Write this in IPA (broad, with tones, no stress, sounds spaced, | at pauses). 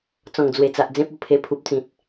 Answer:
t͡s ɔ̃˨˩ ŋ d͡z w e˨˩ t͡s a˨ ʔ d͡z ẽ˦ p̚ o˧ pʰ e˧ pʰ u˨ p̚ t͡s ĩ˨ t̚